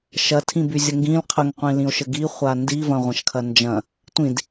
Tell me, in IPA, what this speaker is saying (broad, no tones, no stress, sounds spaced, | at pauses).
ʃ ɐ tʰ ĩ b y zʲ ə ŋ ɡ ĩ l qʰ ə ŋ qʷ ĩ l ĩ o̯ ʃ ə ɡ i χʷ a n d i v ɐ̃ ʁʷ ɐ̃ ʃ kʰ ɐ n d͡ʒ ɐ̃ | tʷ ĩ d